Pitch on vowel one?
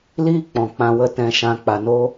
high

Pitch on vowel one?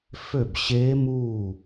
falling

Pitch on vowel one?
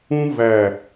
high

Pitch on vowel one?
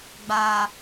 low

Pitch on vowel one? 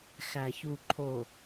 low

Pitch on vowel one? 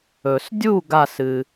low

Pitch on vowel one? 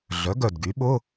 rising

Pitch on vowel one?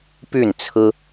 falling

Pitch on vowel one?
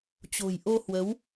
low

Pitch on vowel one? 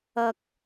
high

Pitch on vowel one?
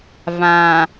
low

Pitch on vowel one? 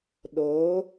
rising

